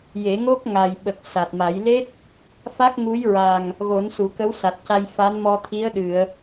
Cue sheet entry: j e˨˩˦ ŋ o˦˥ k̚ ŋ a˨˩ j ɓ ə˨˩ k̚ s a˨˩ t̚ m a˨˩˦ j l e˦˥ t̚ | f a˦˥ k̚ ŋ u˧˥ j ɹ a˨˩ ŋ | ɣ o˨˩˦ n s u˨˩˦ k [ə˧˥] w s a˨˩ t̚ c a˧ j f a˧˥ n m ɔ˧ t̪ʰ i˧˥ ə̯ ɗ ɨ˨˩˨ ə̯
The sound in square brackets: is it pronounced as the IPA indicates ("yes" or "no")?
yes